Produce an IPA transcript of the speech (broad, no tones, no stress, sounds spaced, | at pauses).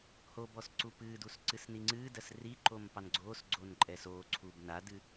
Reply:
h o b ɔ s ǀ u p ɨː d u s ǀ ɨ s n i ŋ͡ǀ ɨː d ɜ s r i ǃ o m p ɑ n ɡ͡ǀ oː s ɡ͡ǀ oː n ǃʼ ɛ s oː ǀʰ uː b n a d ɨ